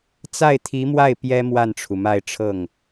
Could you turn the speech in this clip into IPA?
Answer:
t͡s a˥˩ ɪ̯ t̪ʰ i˧˥ m w a˥˩ ɪ̯ p j ɛ˥ m w a˥˩ n ʈ͡ʂʰ u˩ m a˥˧ ɪ̯ ʈ͡ʂʰ ɤ˥˩ ŋ

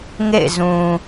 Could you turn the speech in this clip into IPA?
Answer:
ŋ ḛ˦˨ ɪ̯ z ũ˨

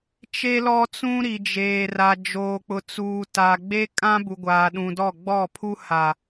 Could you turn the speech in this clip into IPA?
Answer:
t͡ʃ e˦ l ɔ˦ t͡s ũ˦ ɾ i˨ d͡ʒ eː˨ r a˨ d͡ʒ oː˨ k͡p ʊ˨ t͡s uː˨ t a˨ ɡ͡b e˦ kʼ ã˦ b u˨ ɡʷ aː˨ ɗ ũ˨ d ɔ˦˨ ɡ͡b ɔ˦˨ pʰ u˦ h a˨

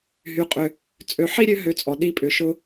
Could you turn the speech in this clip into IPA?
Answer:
ɦ y˧ qʼ ʏ˧ | t͡sʼ ø˨˦ ħ i˦ ɾʲ ø˧ ɦ ø˧ t͡sʼ ɔ˨ ɗ i˦ pʼ ʏ˧ ʃ ʊ˦

